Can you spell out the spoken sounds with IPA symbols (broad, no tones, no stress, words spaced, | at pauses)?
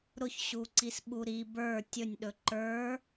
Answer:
ɾʊçɕuǀis ɓuɾi bə˞ tʲɵnʲɗɵ ǃə˞